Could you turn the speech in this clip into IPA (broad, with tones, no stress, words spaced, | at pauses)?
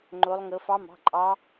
ŋ͡ǃo˦˥lˠŋɤ˦˥ fɑ˦˥mɑ̤˧˥˧ǃʼɑ˦˥